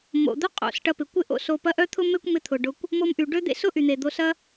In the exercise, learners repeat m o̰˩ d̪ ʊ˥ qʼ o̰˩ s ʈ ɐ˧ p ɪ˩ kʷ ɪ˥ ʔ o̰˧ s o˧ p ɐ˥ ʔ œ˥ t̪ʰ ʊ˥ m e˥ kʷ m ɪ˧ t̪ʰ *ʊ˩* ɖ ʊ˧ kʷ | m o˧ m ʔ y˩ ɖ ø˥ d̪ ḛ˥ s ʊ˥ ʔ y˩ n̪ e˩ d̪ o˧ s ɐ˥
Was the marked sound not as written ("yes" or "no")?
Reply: no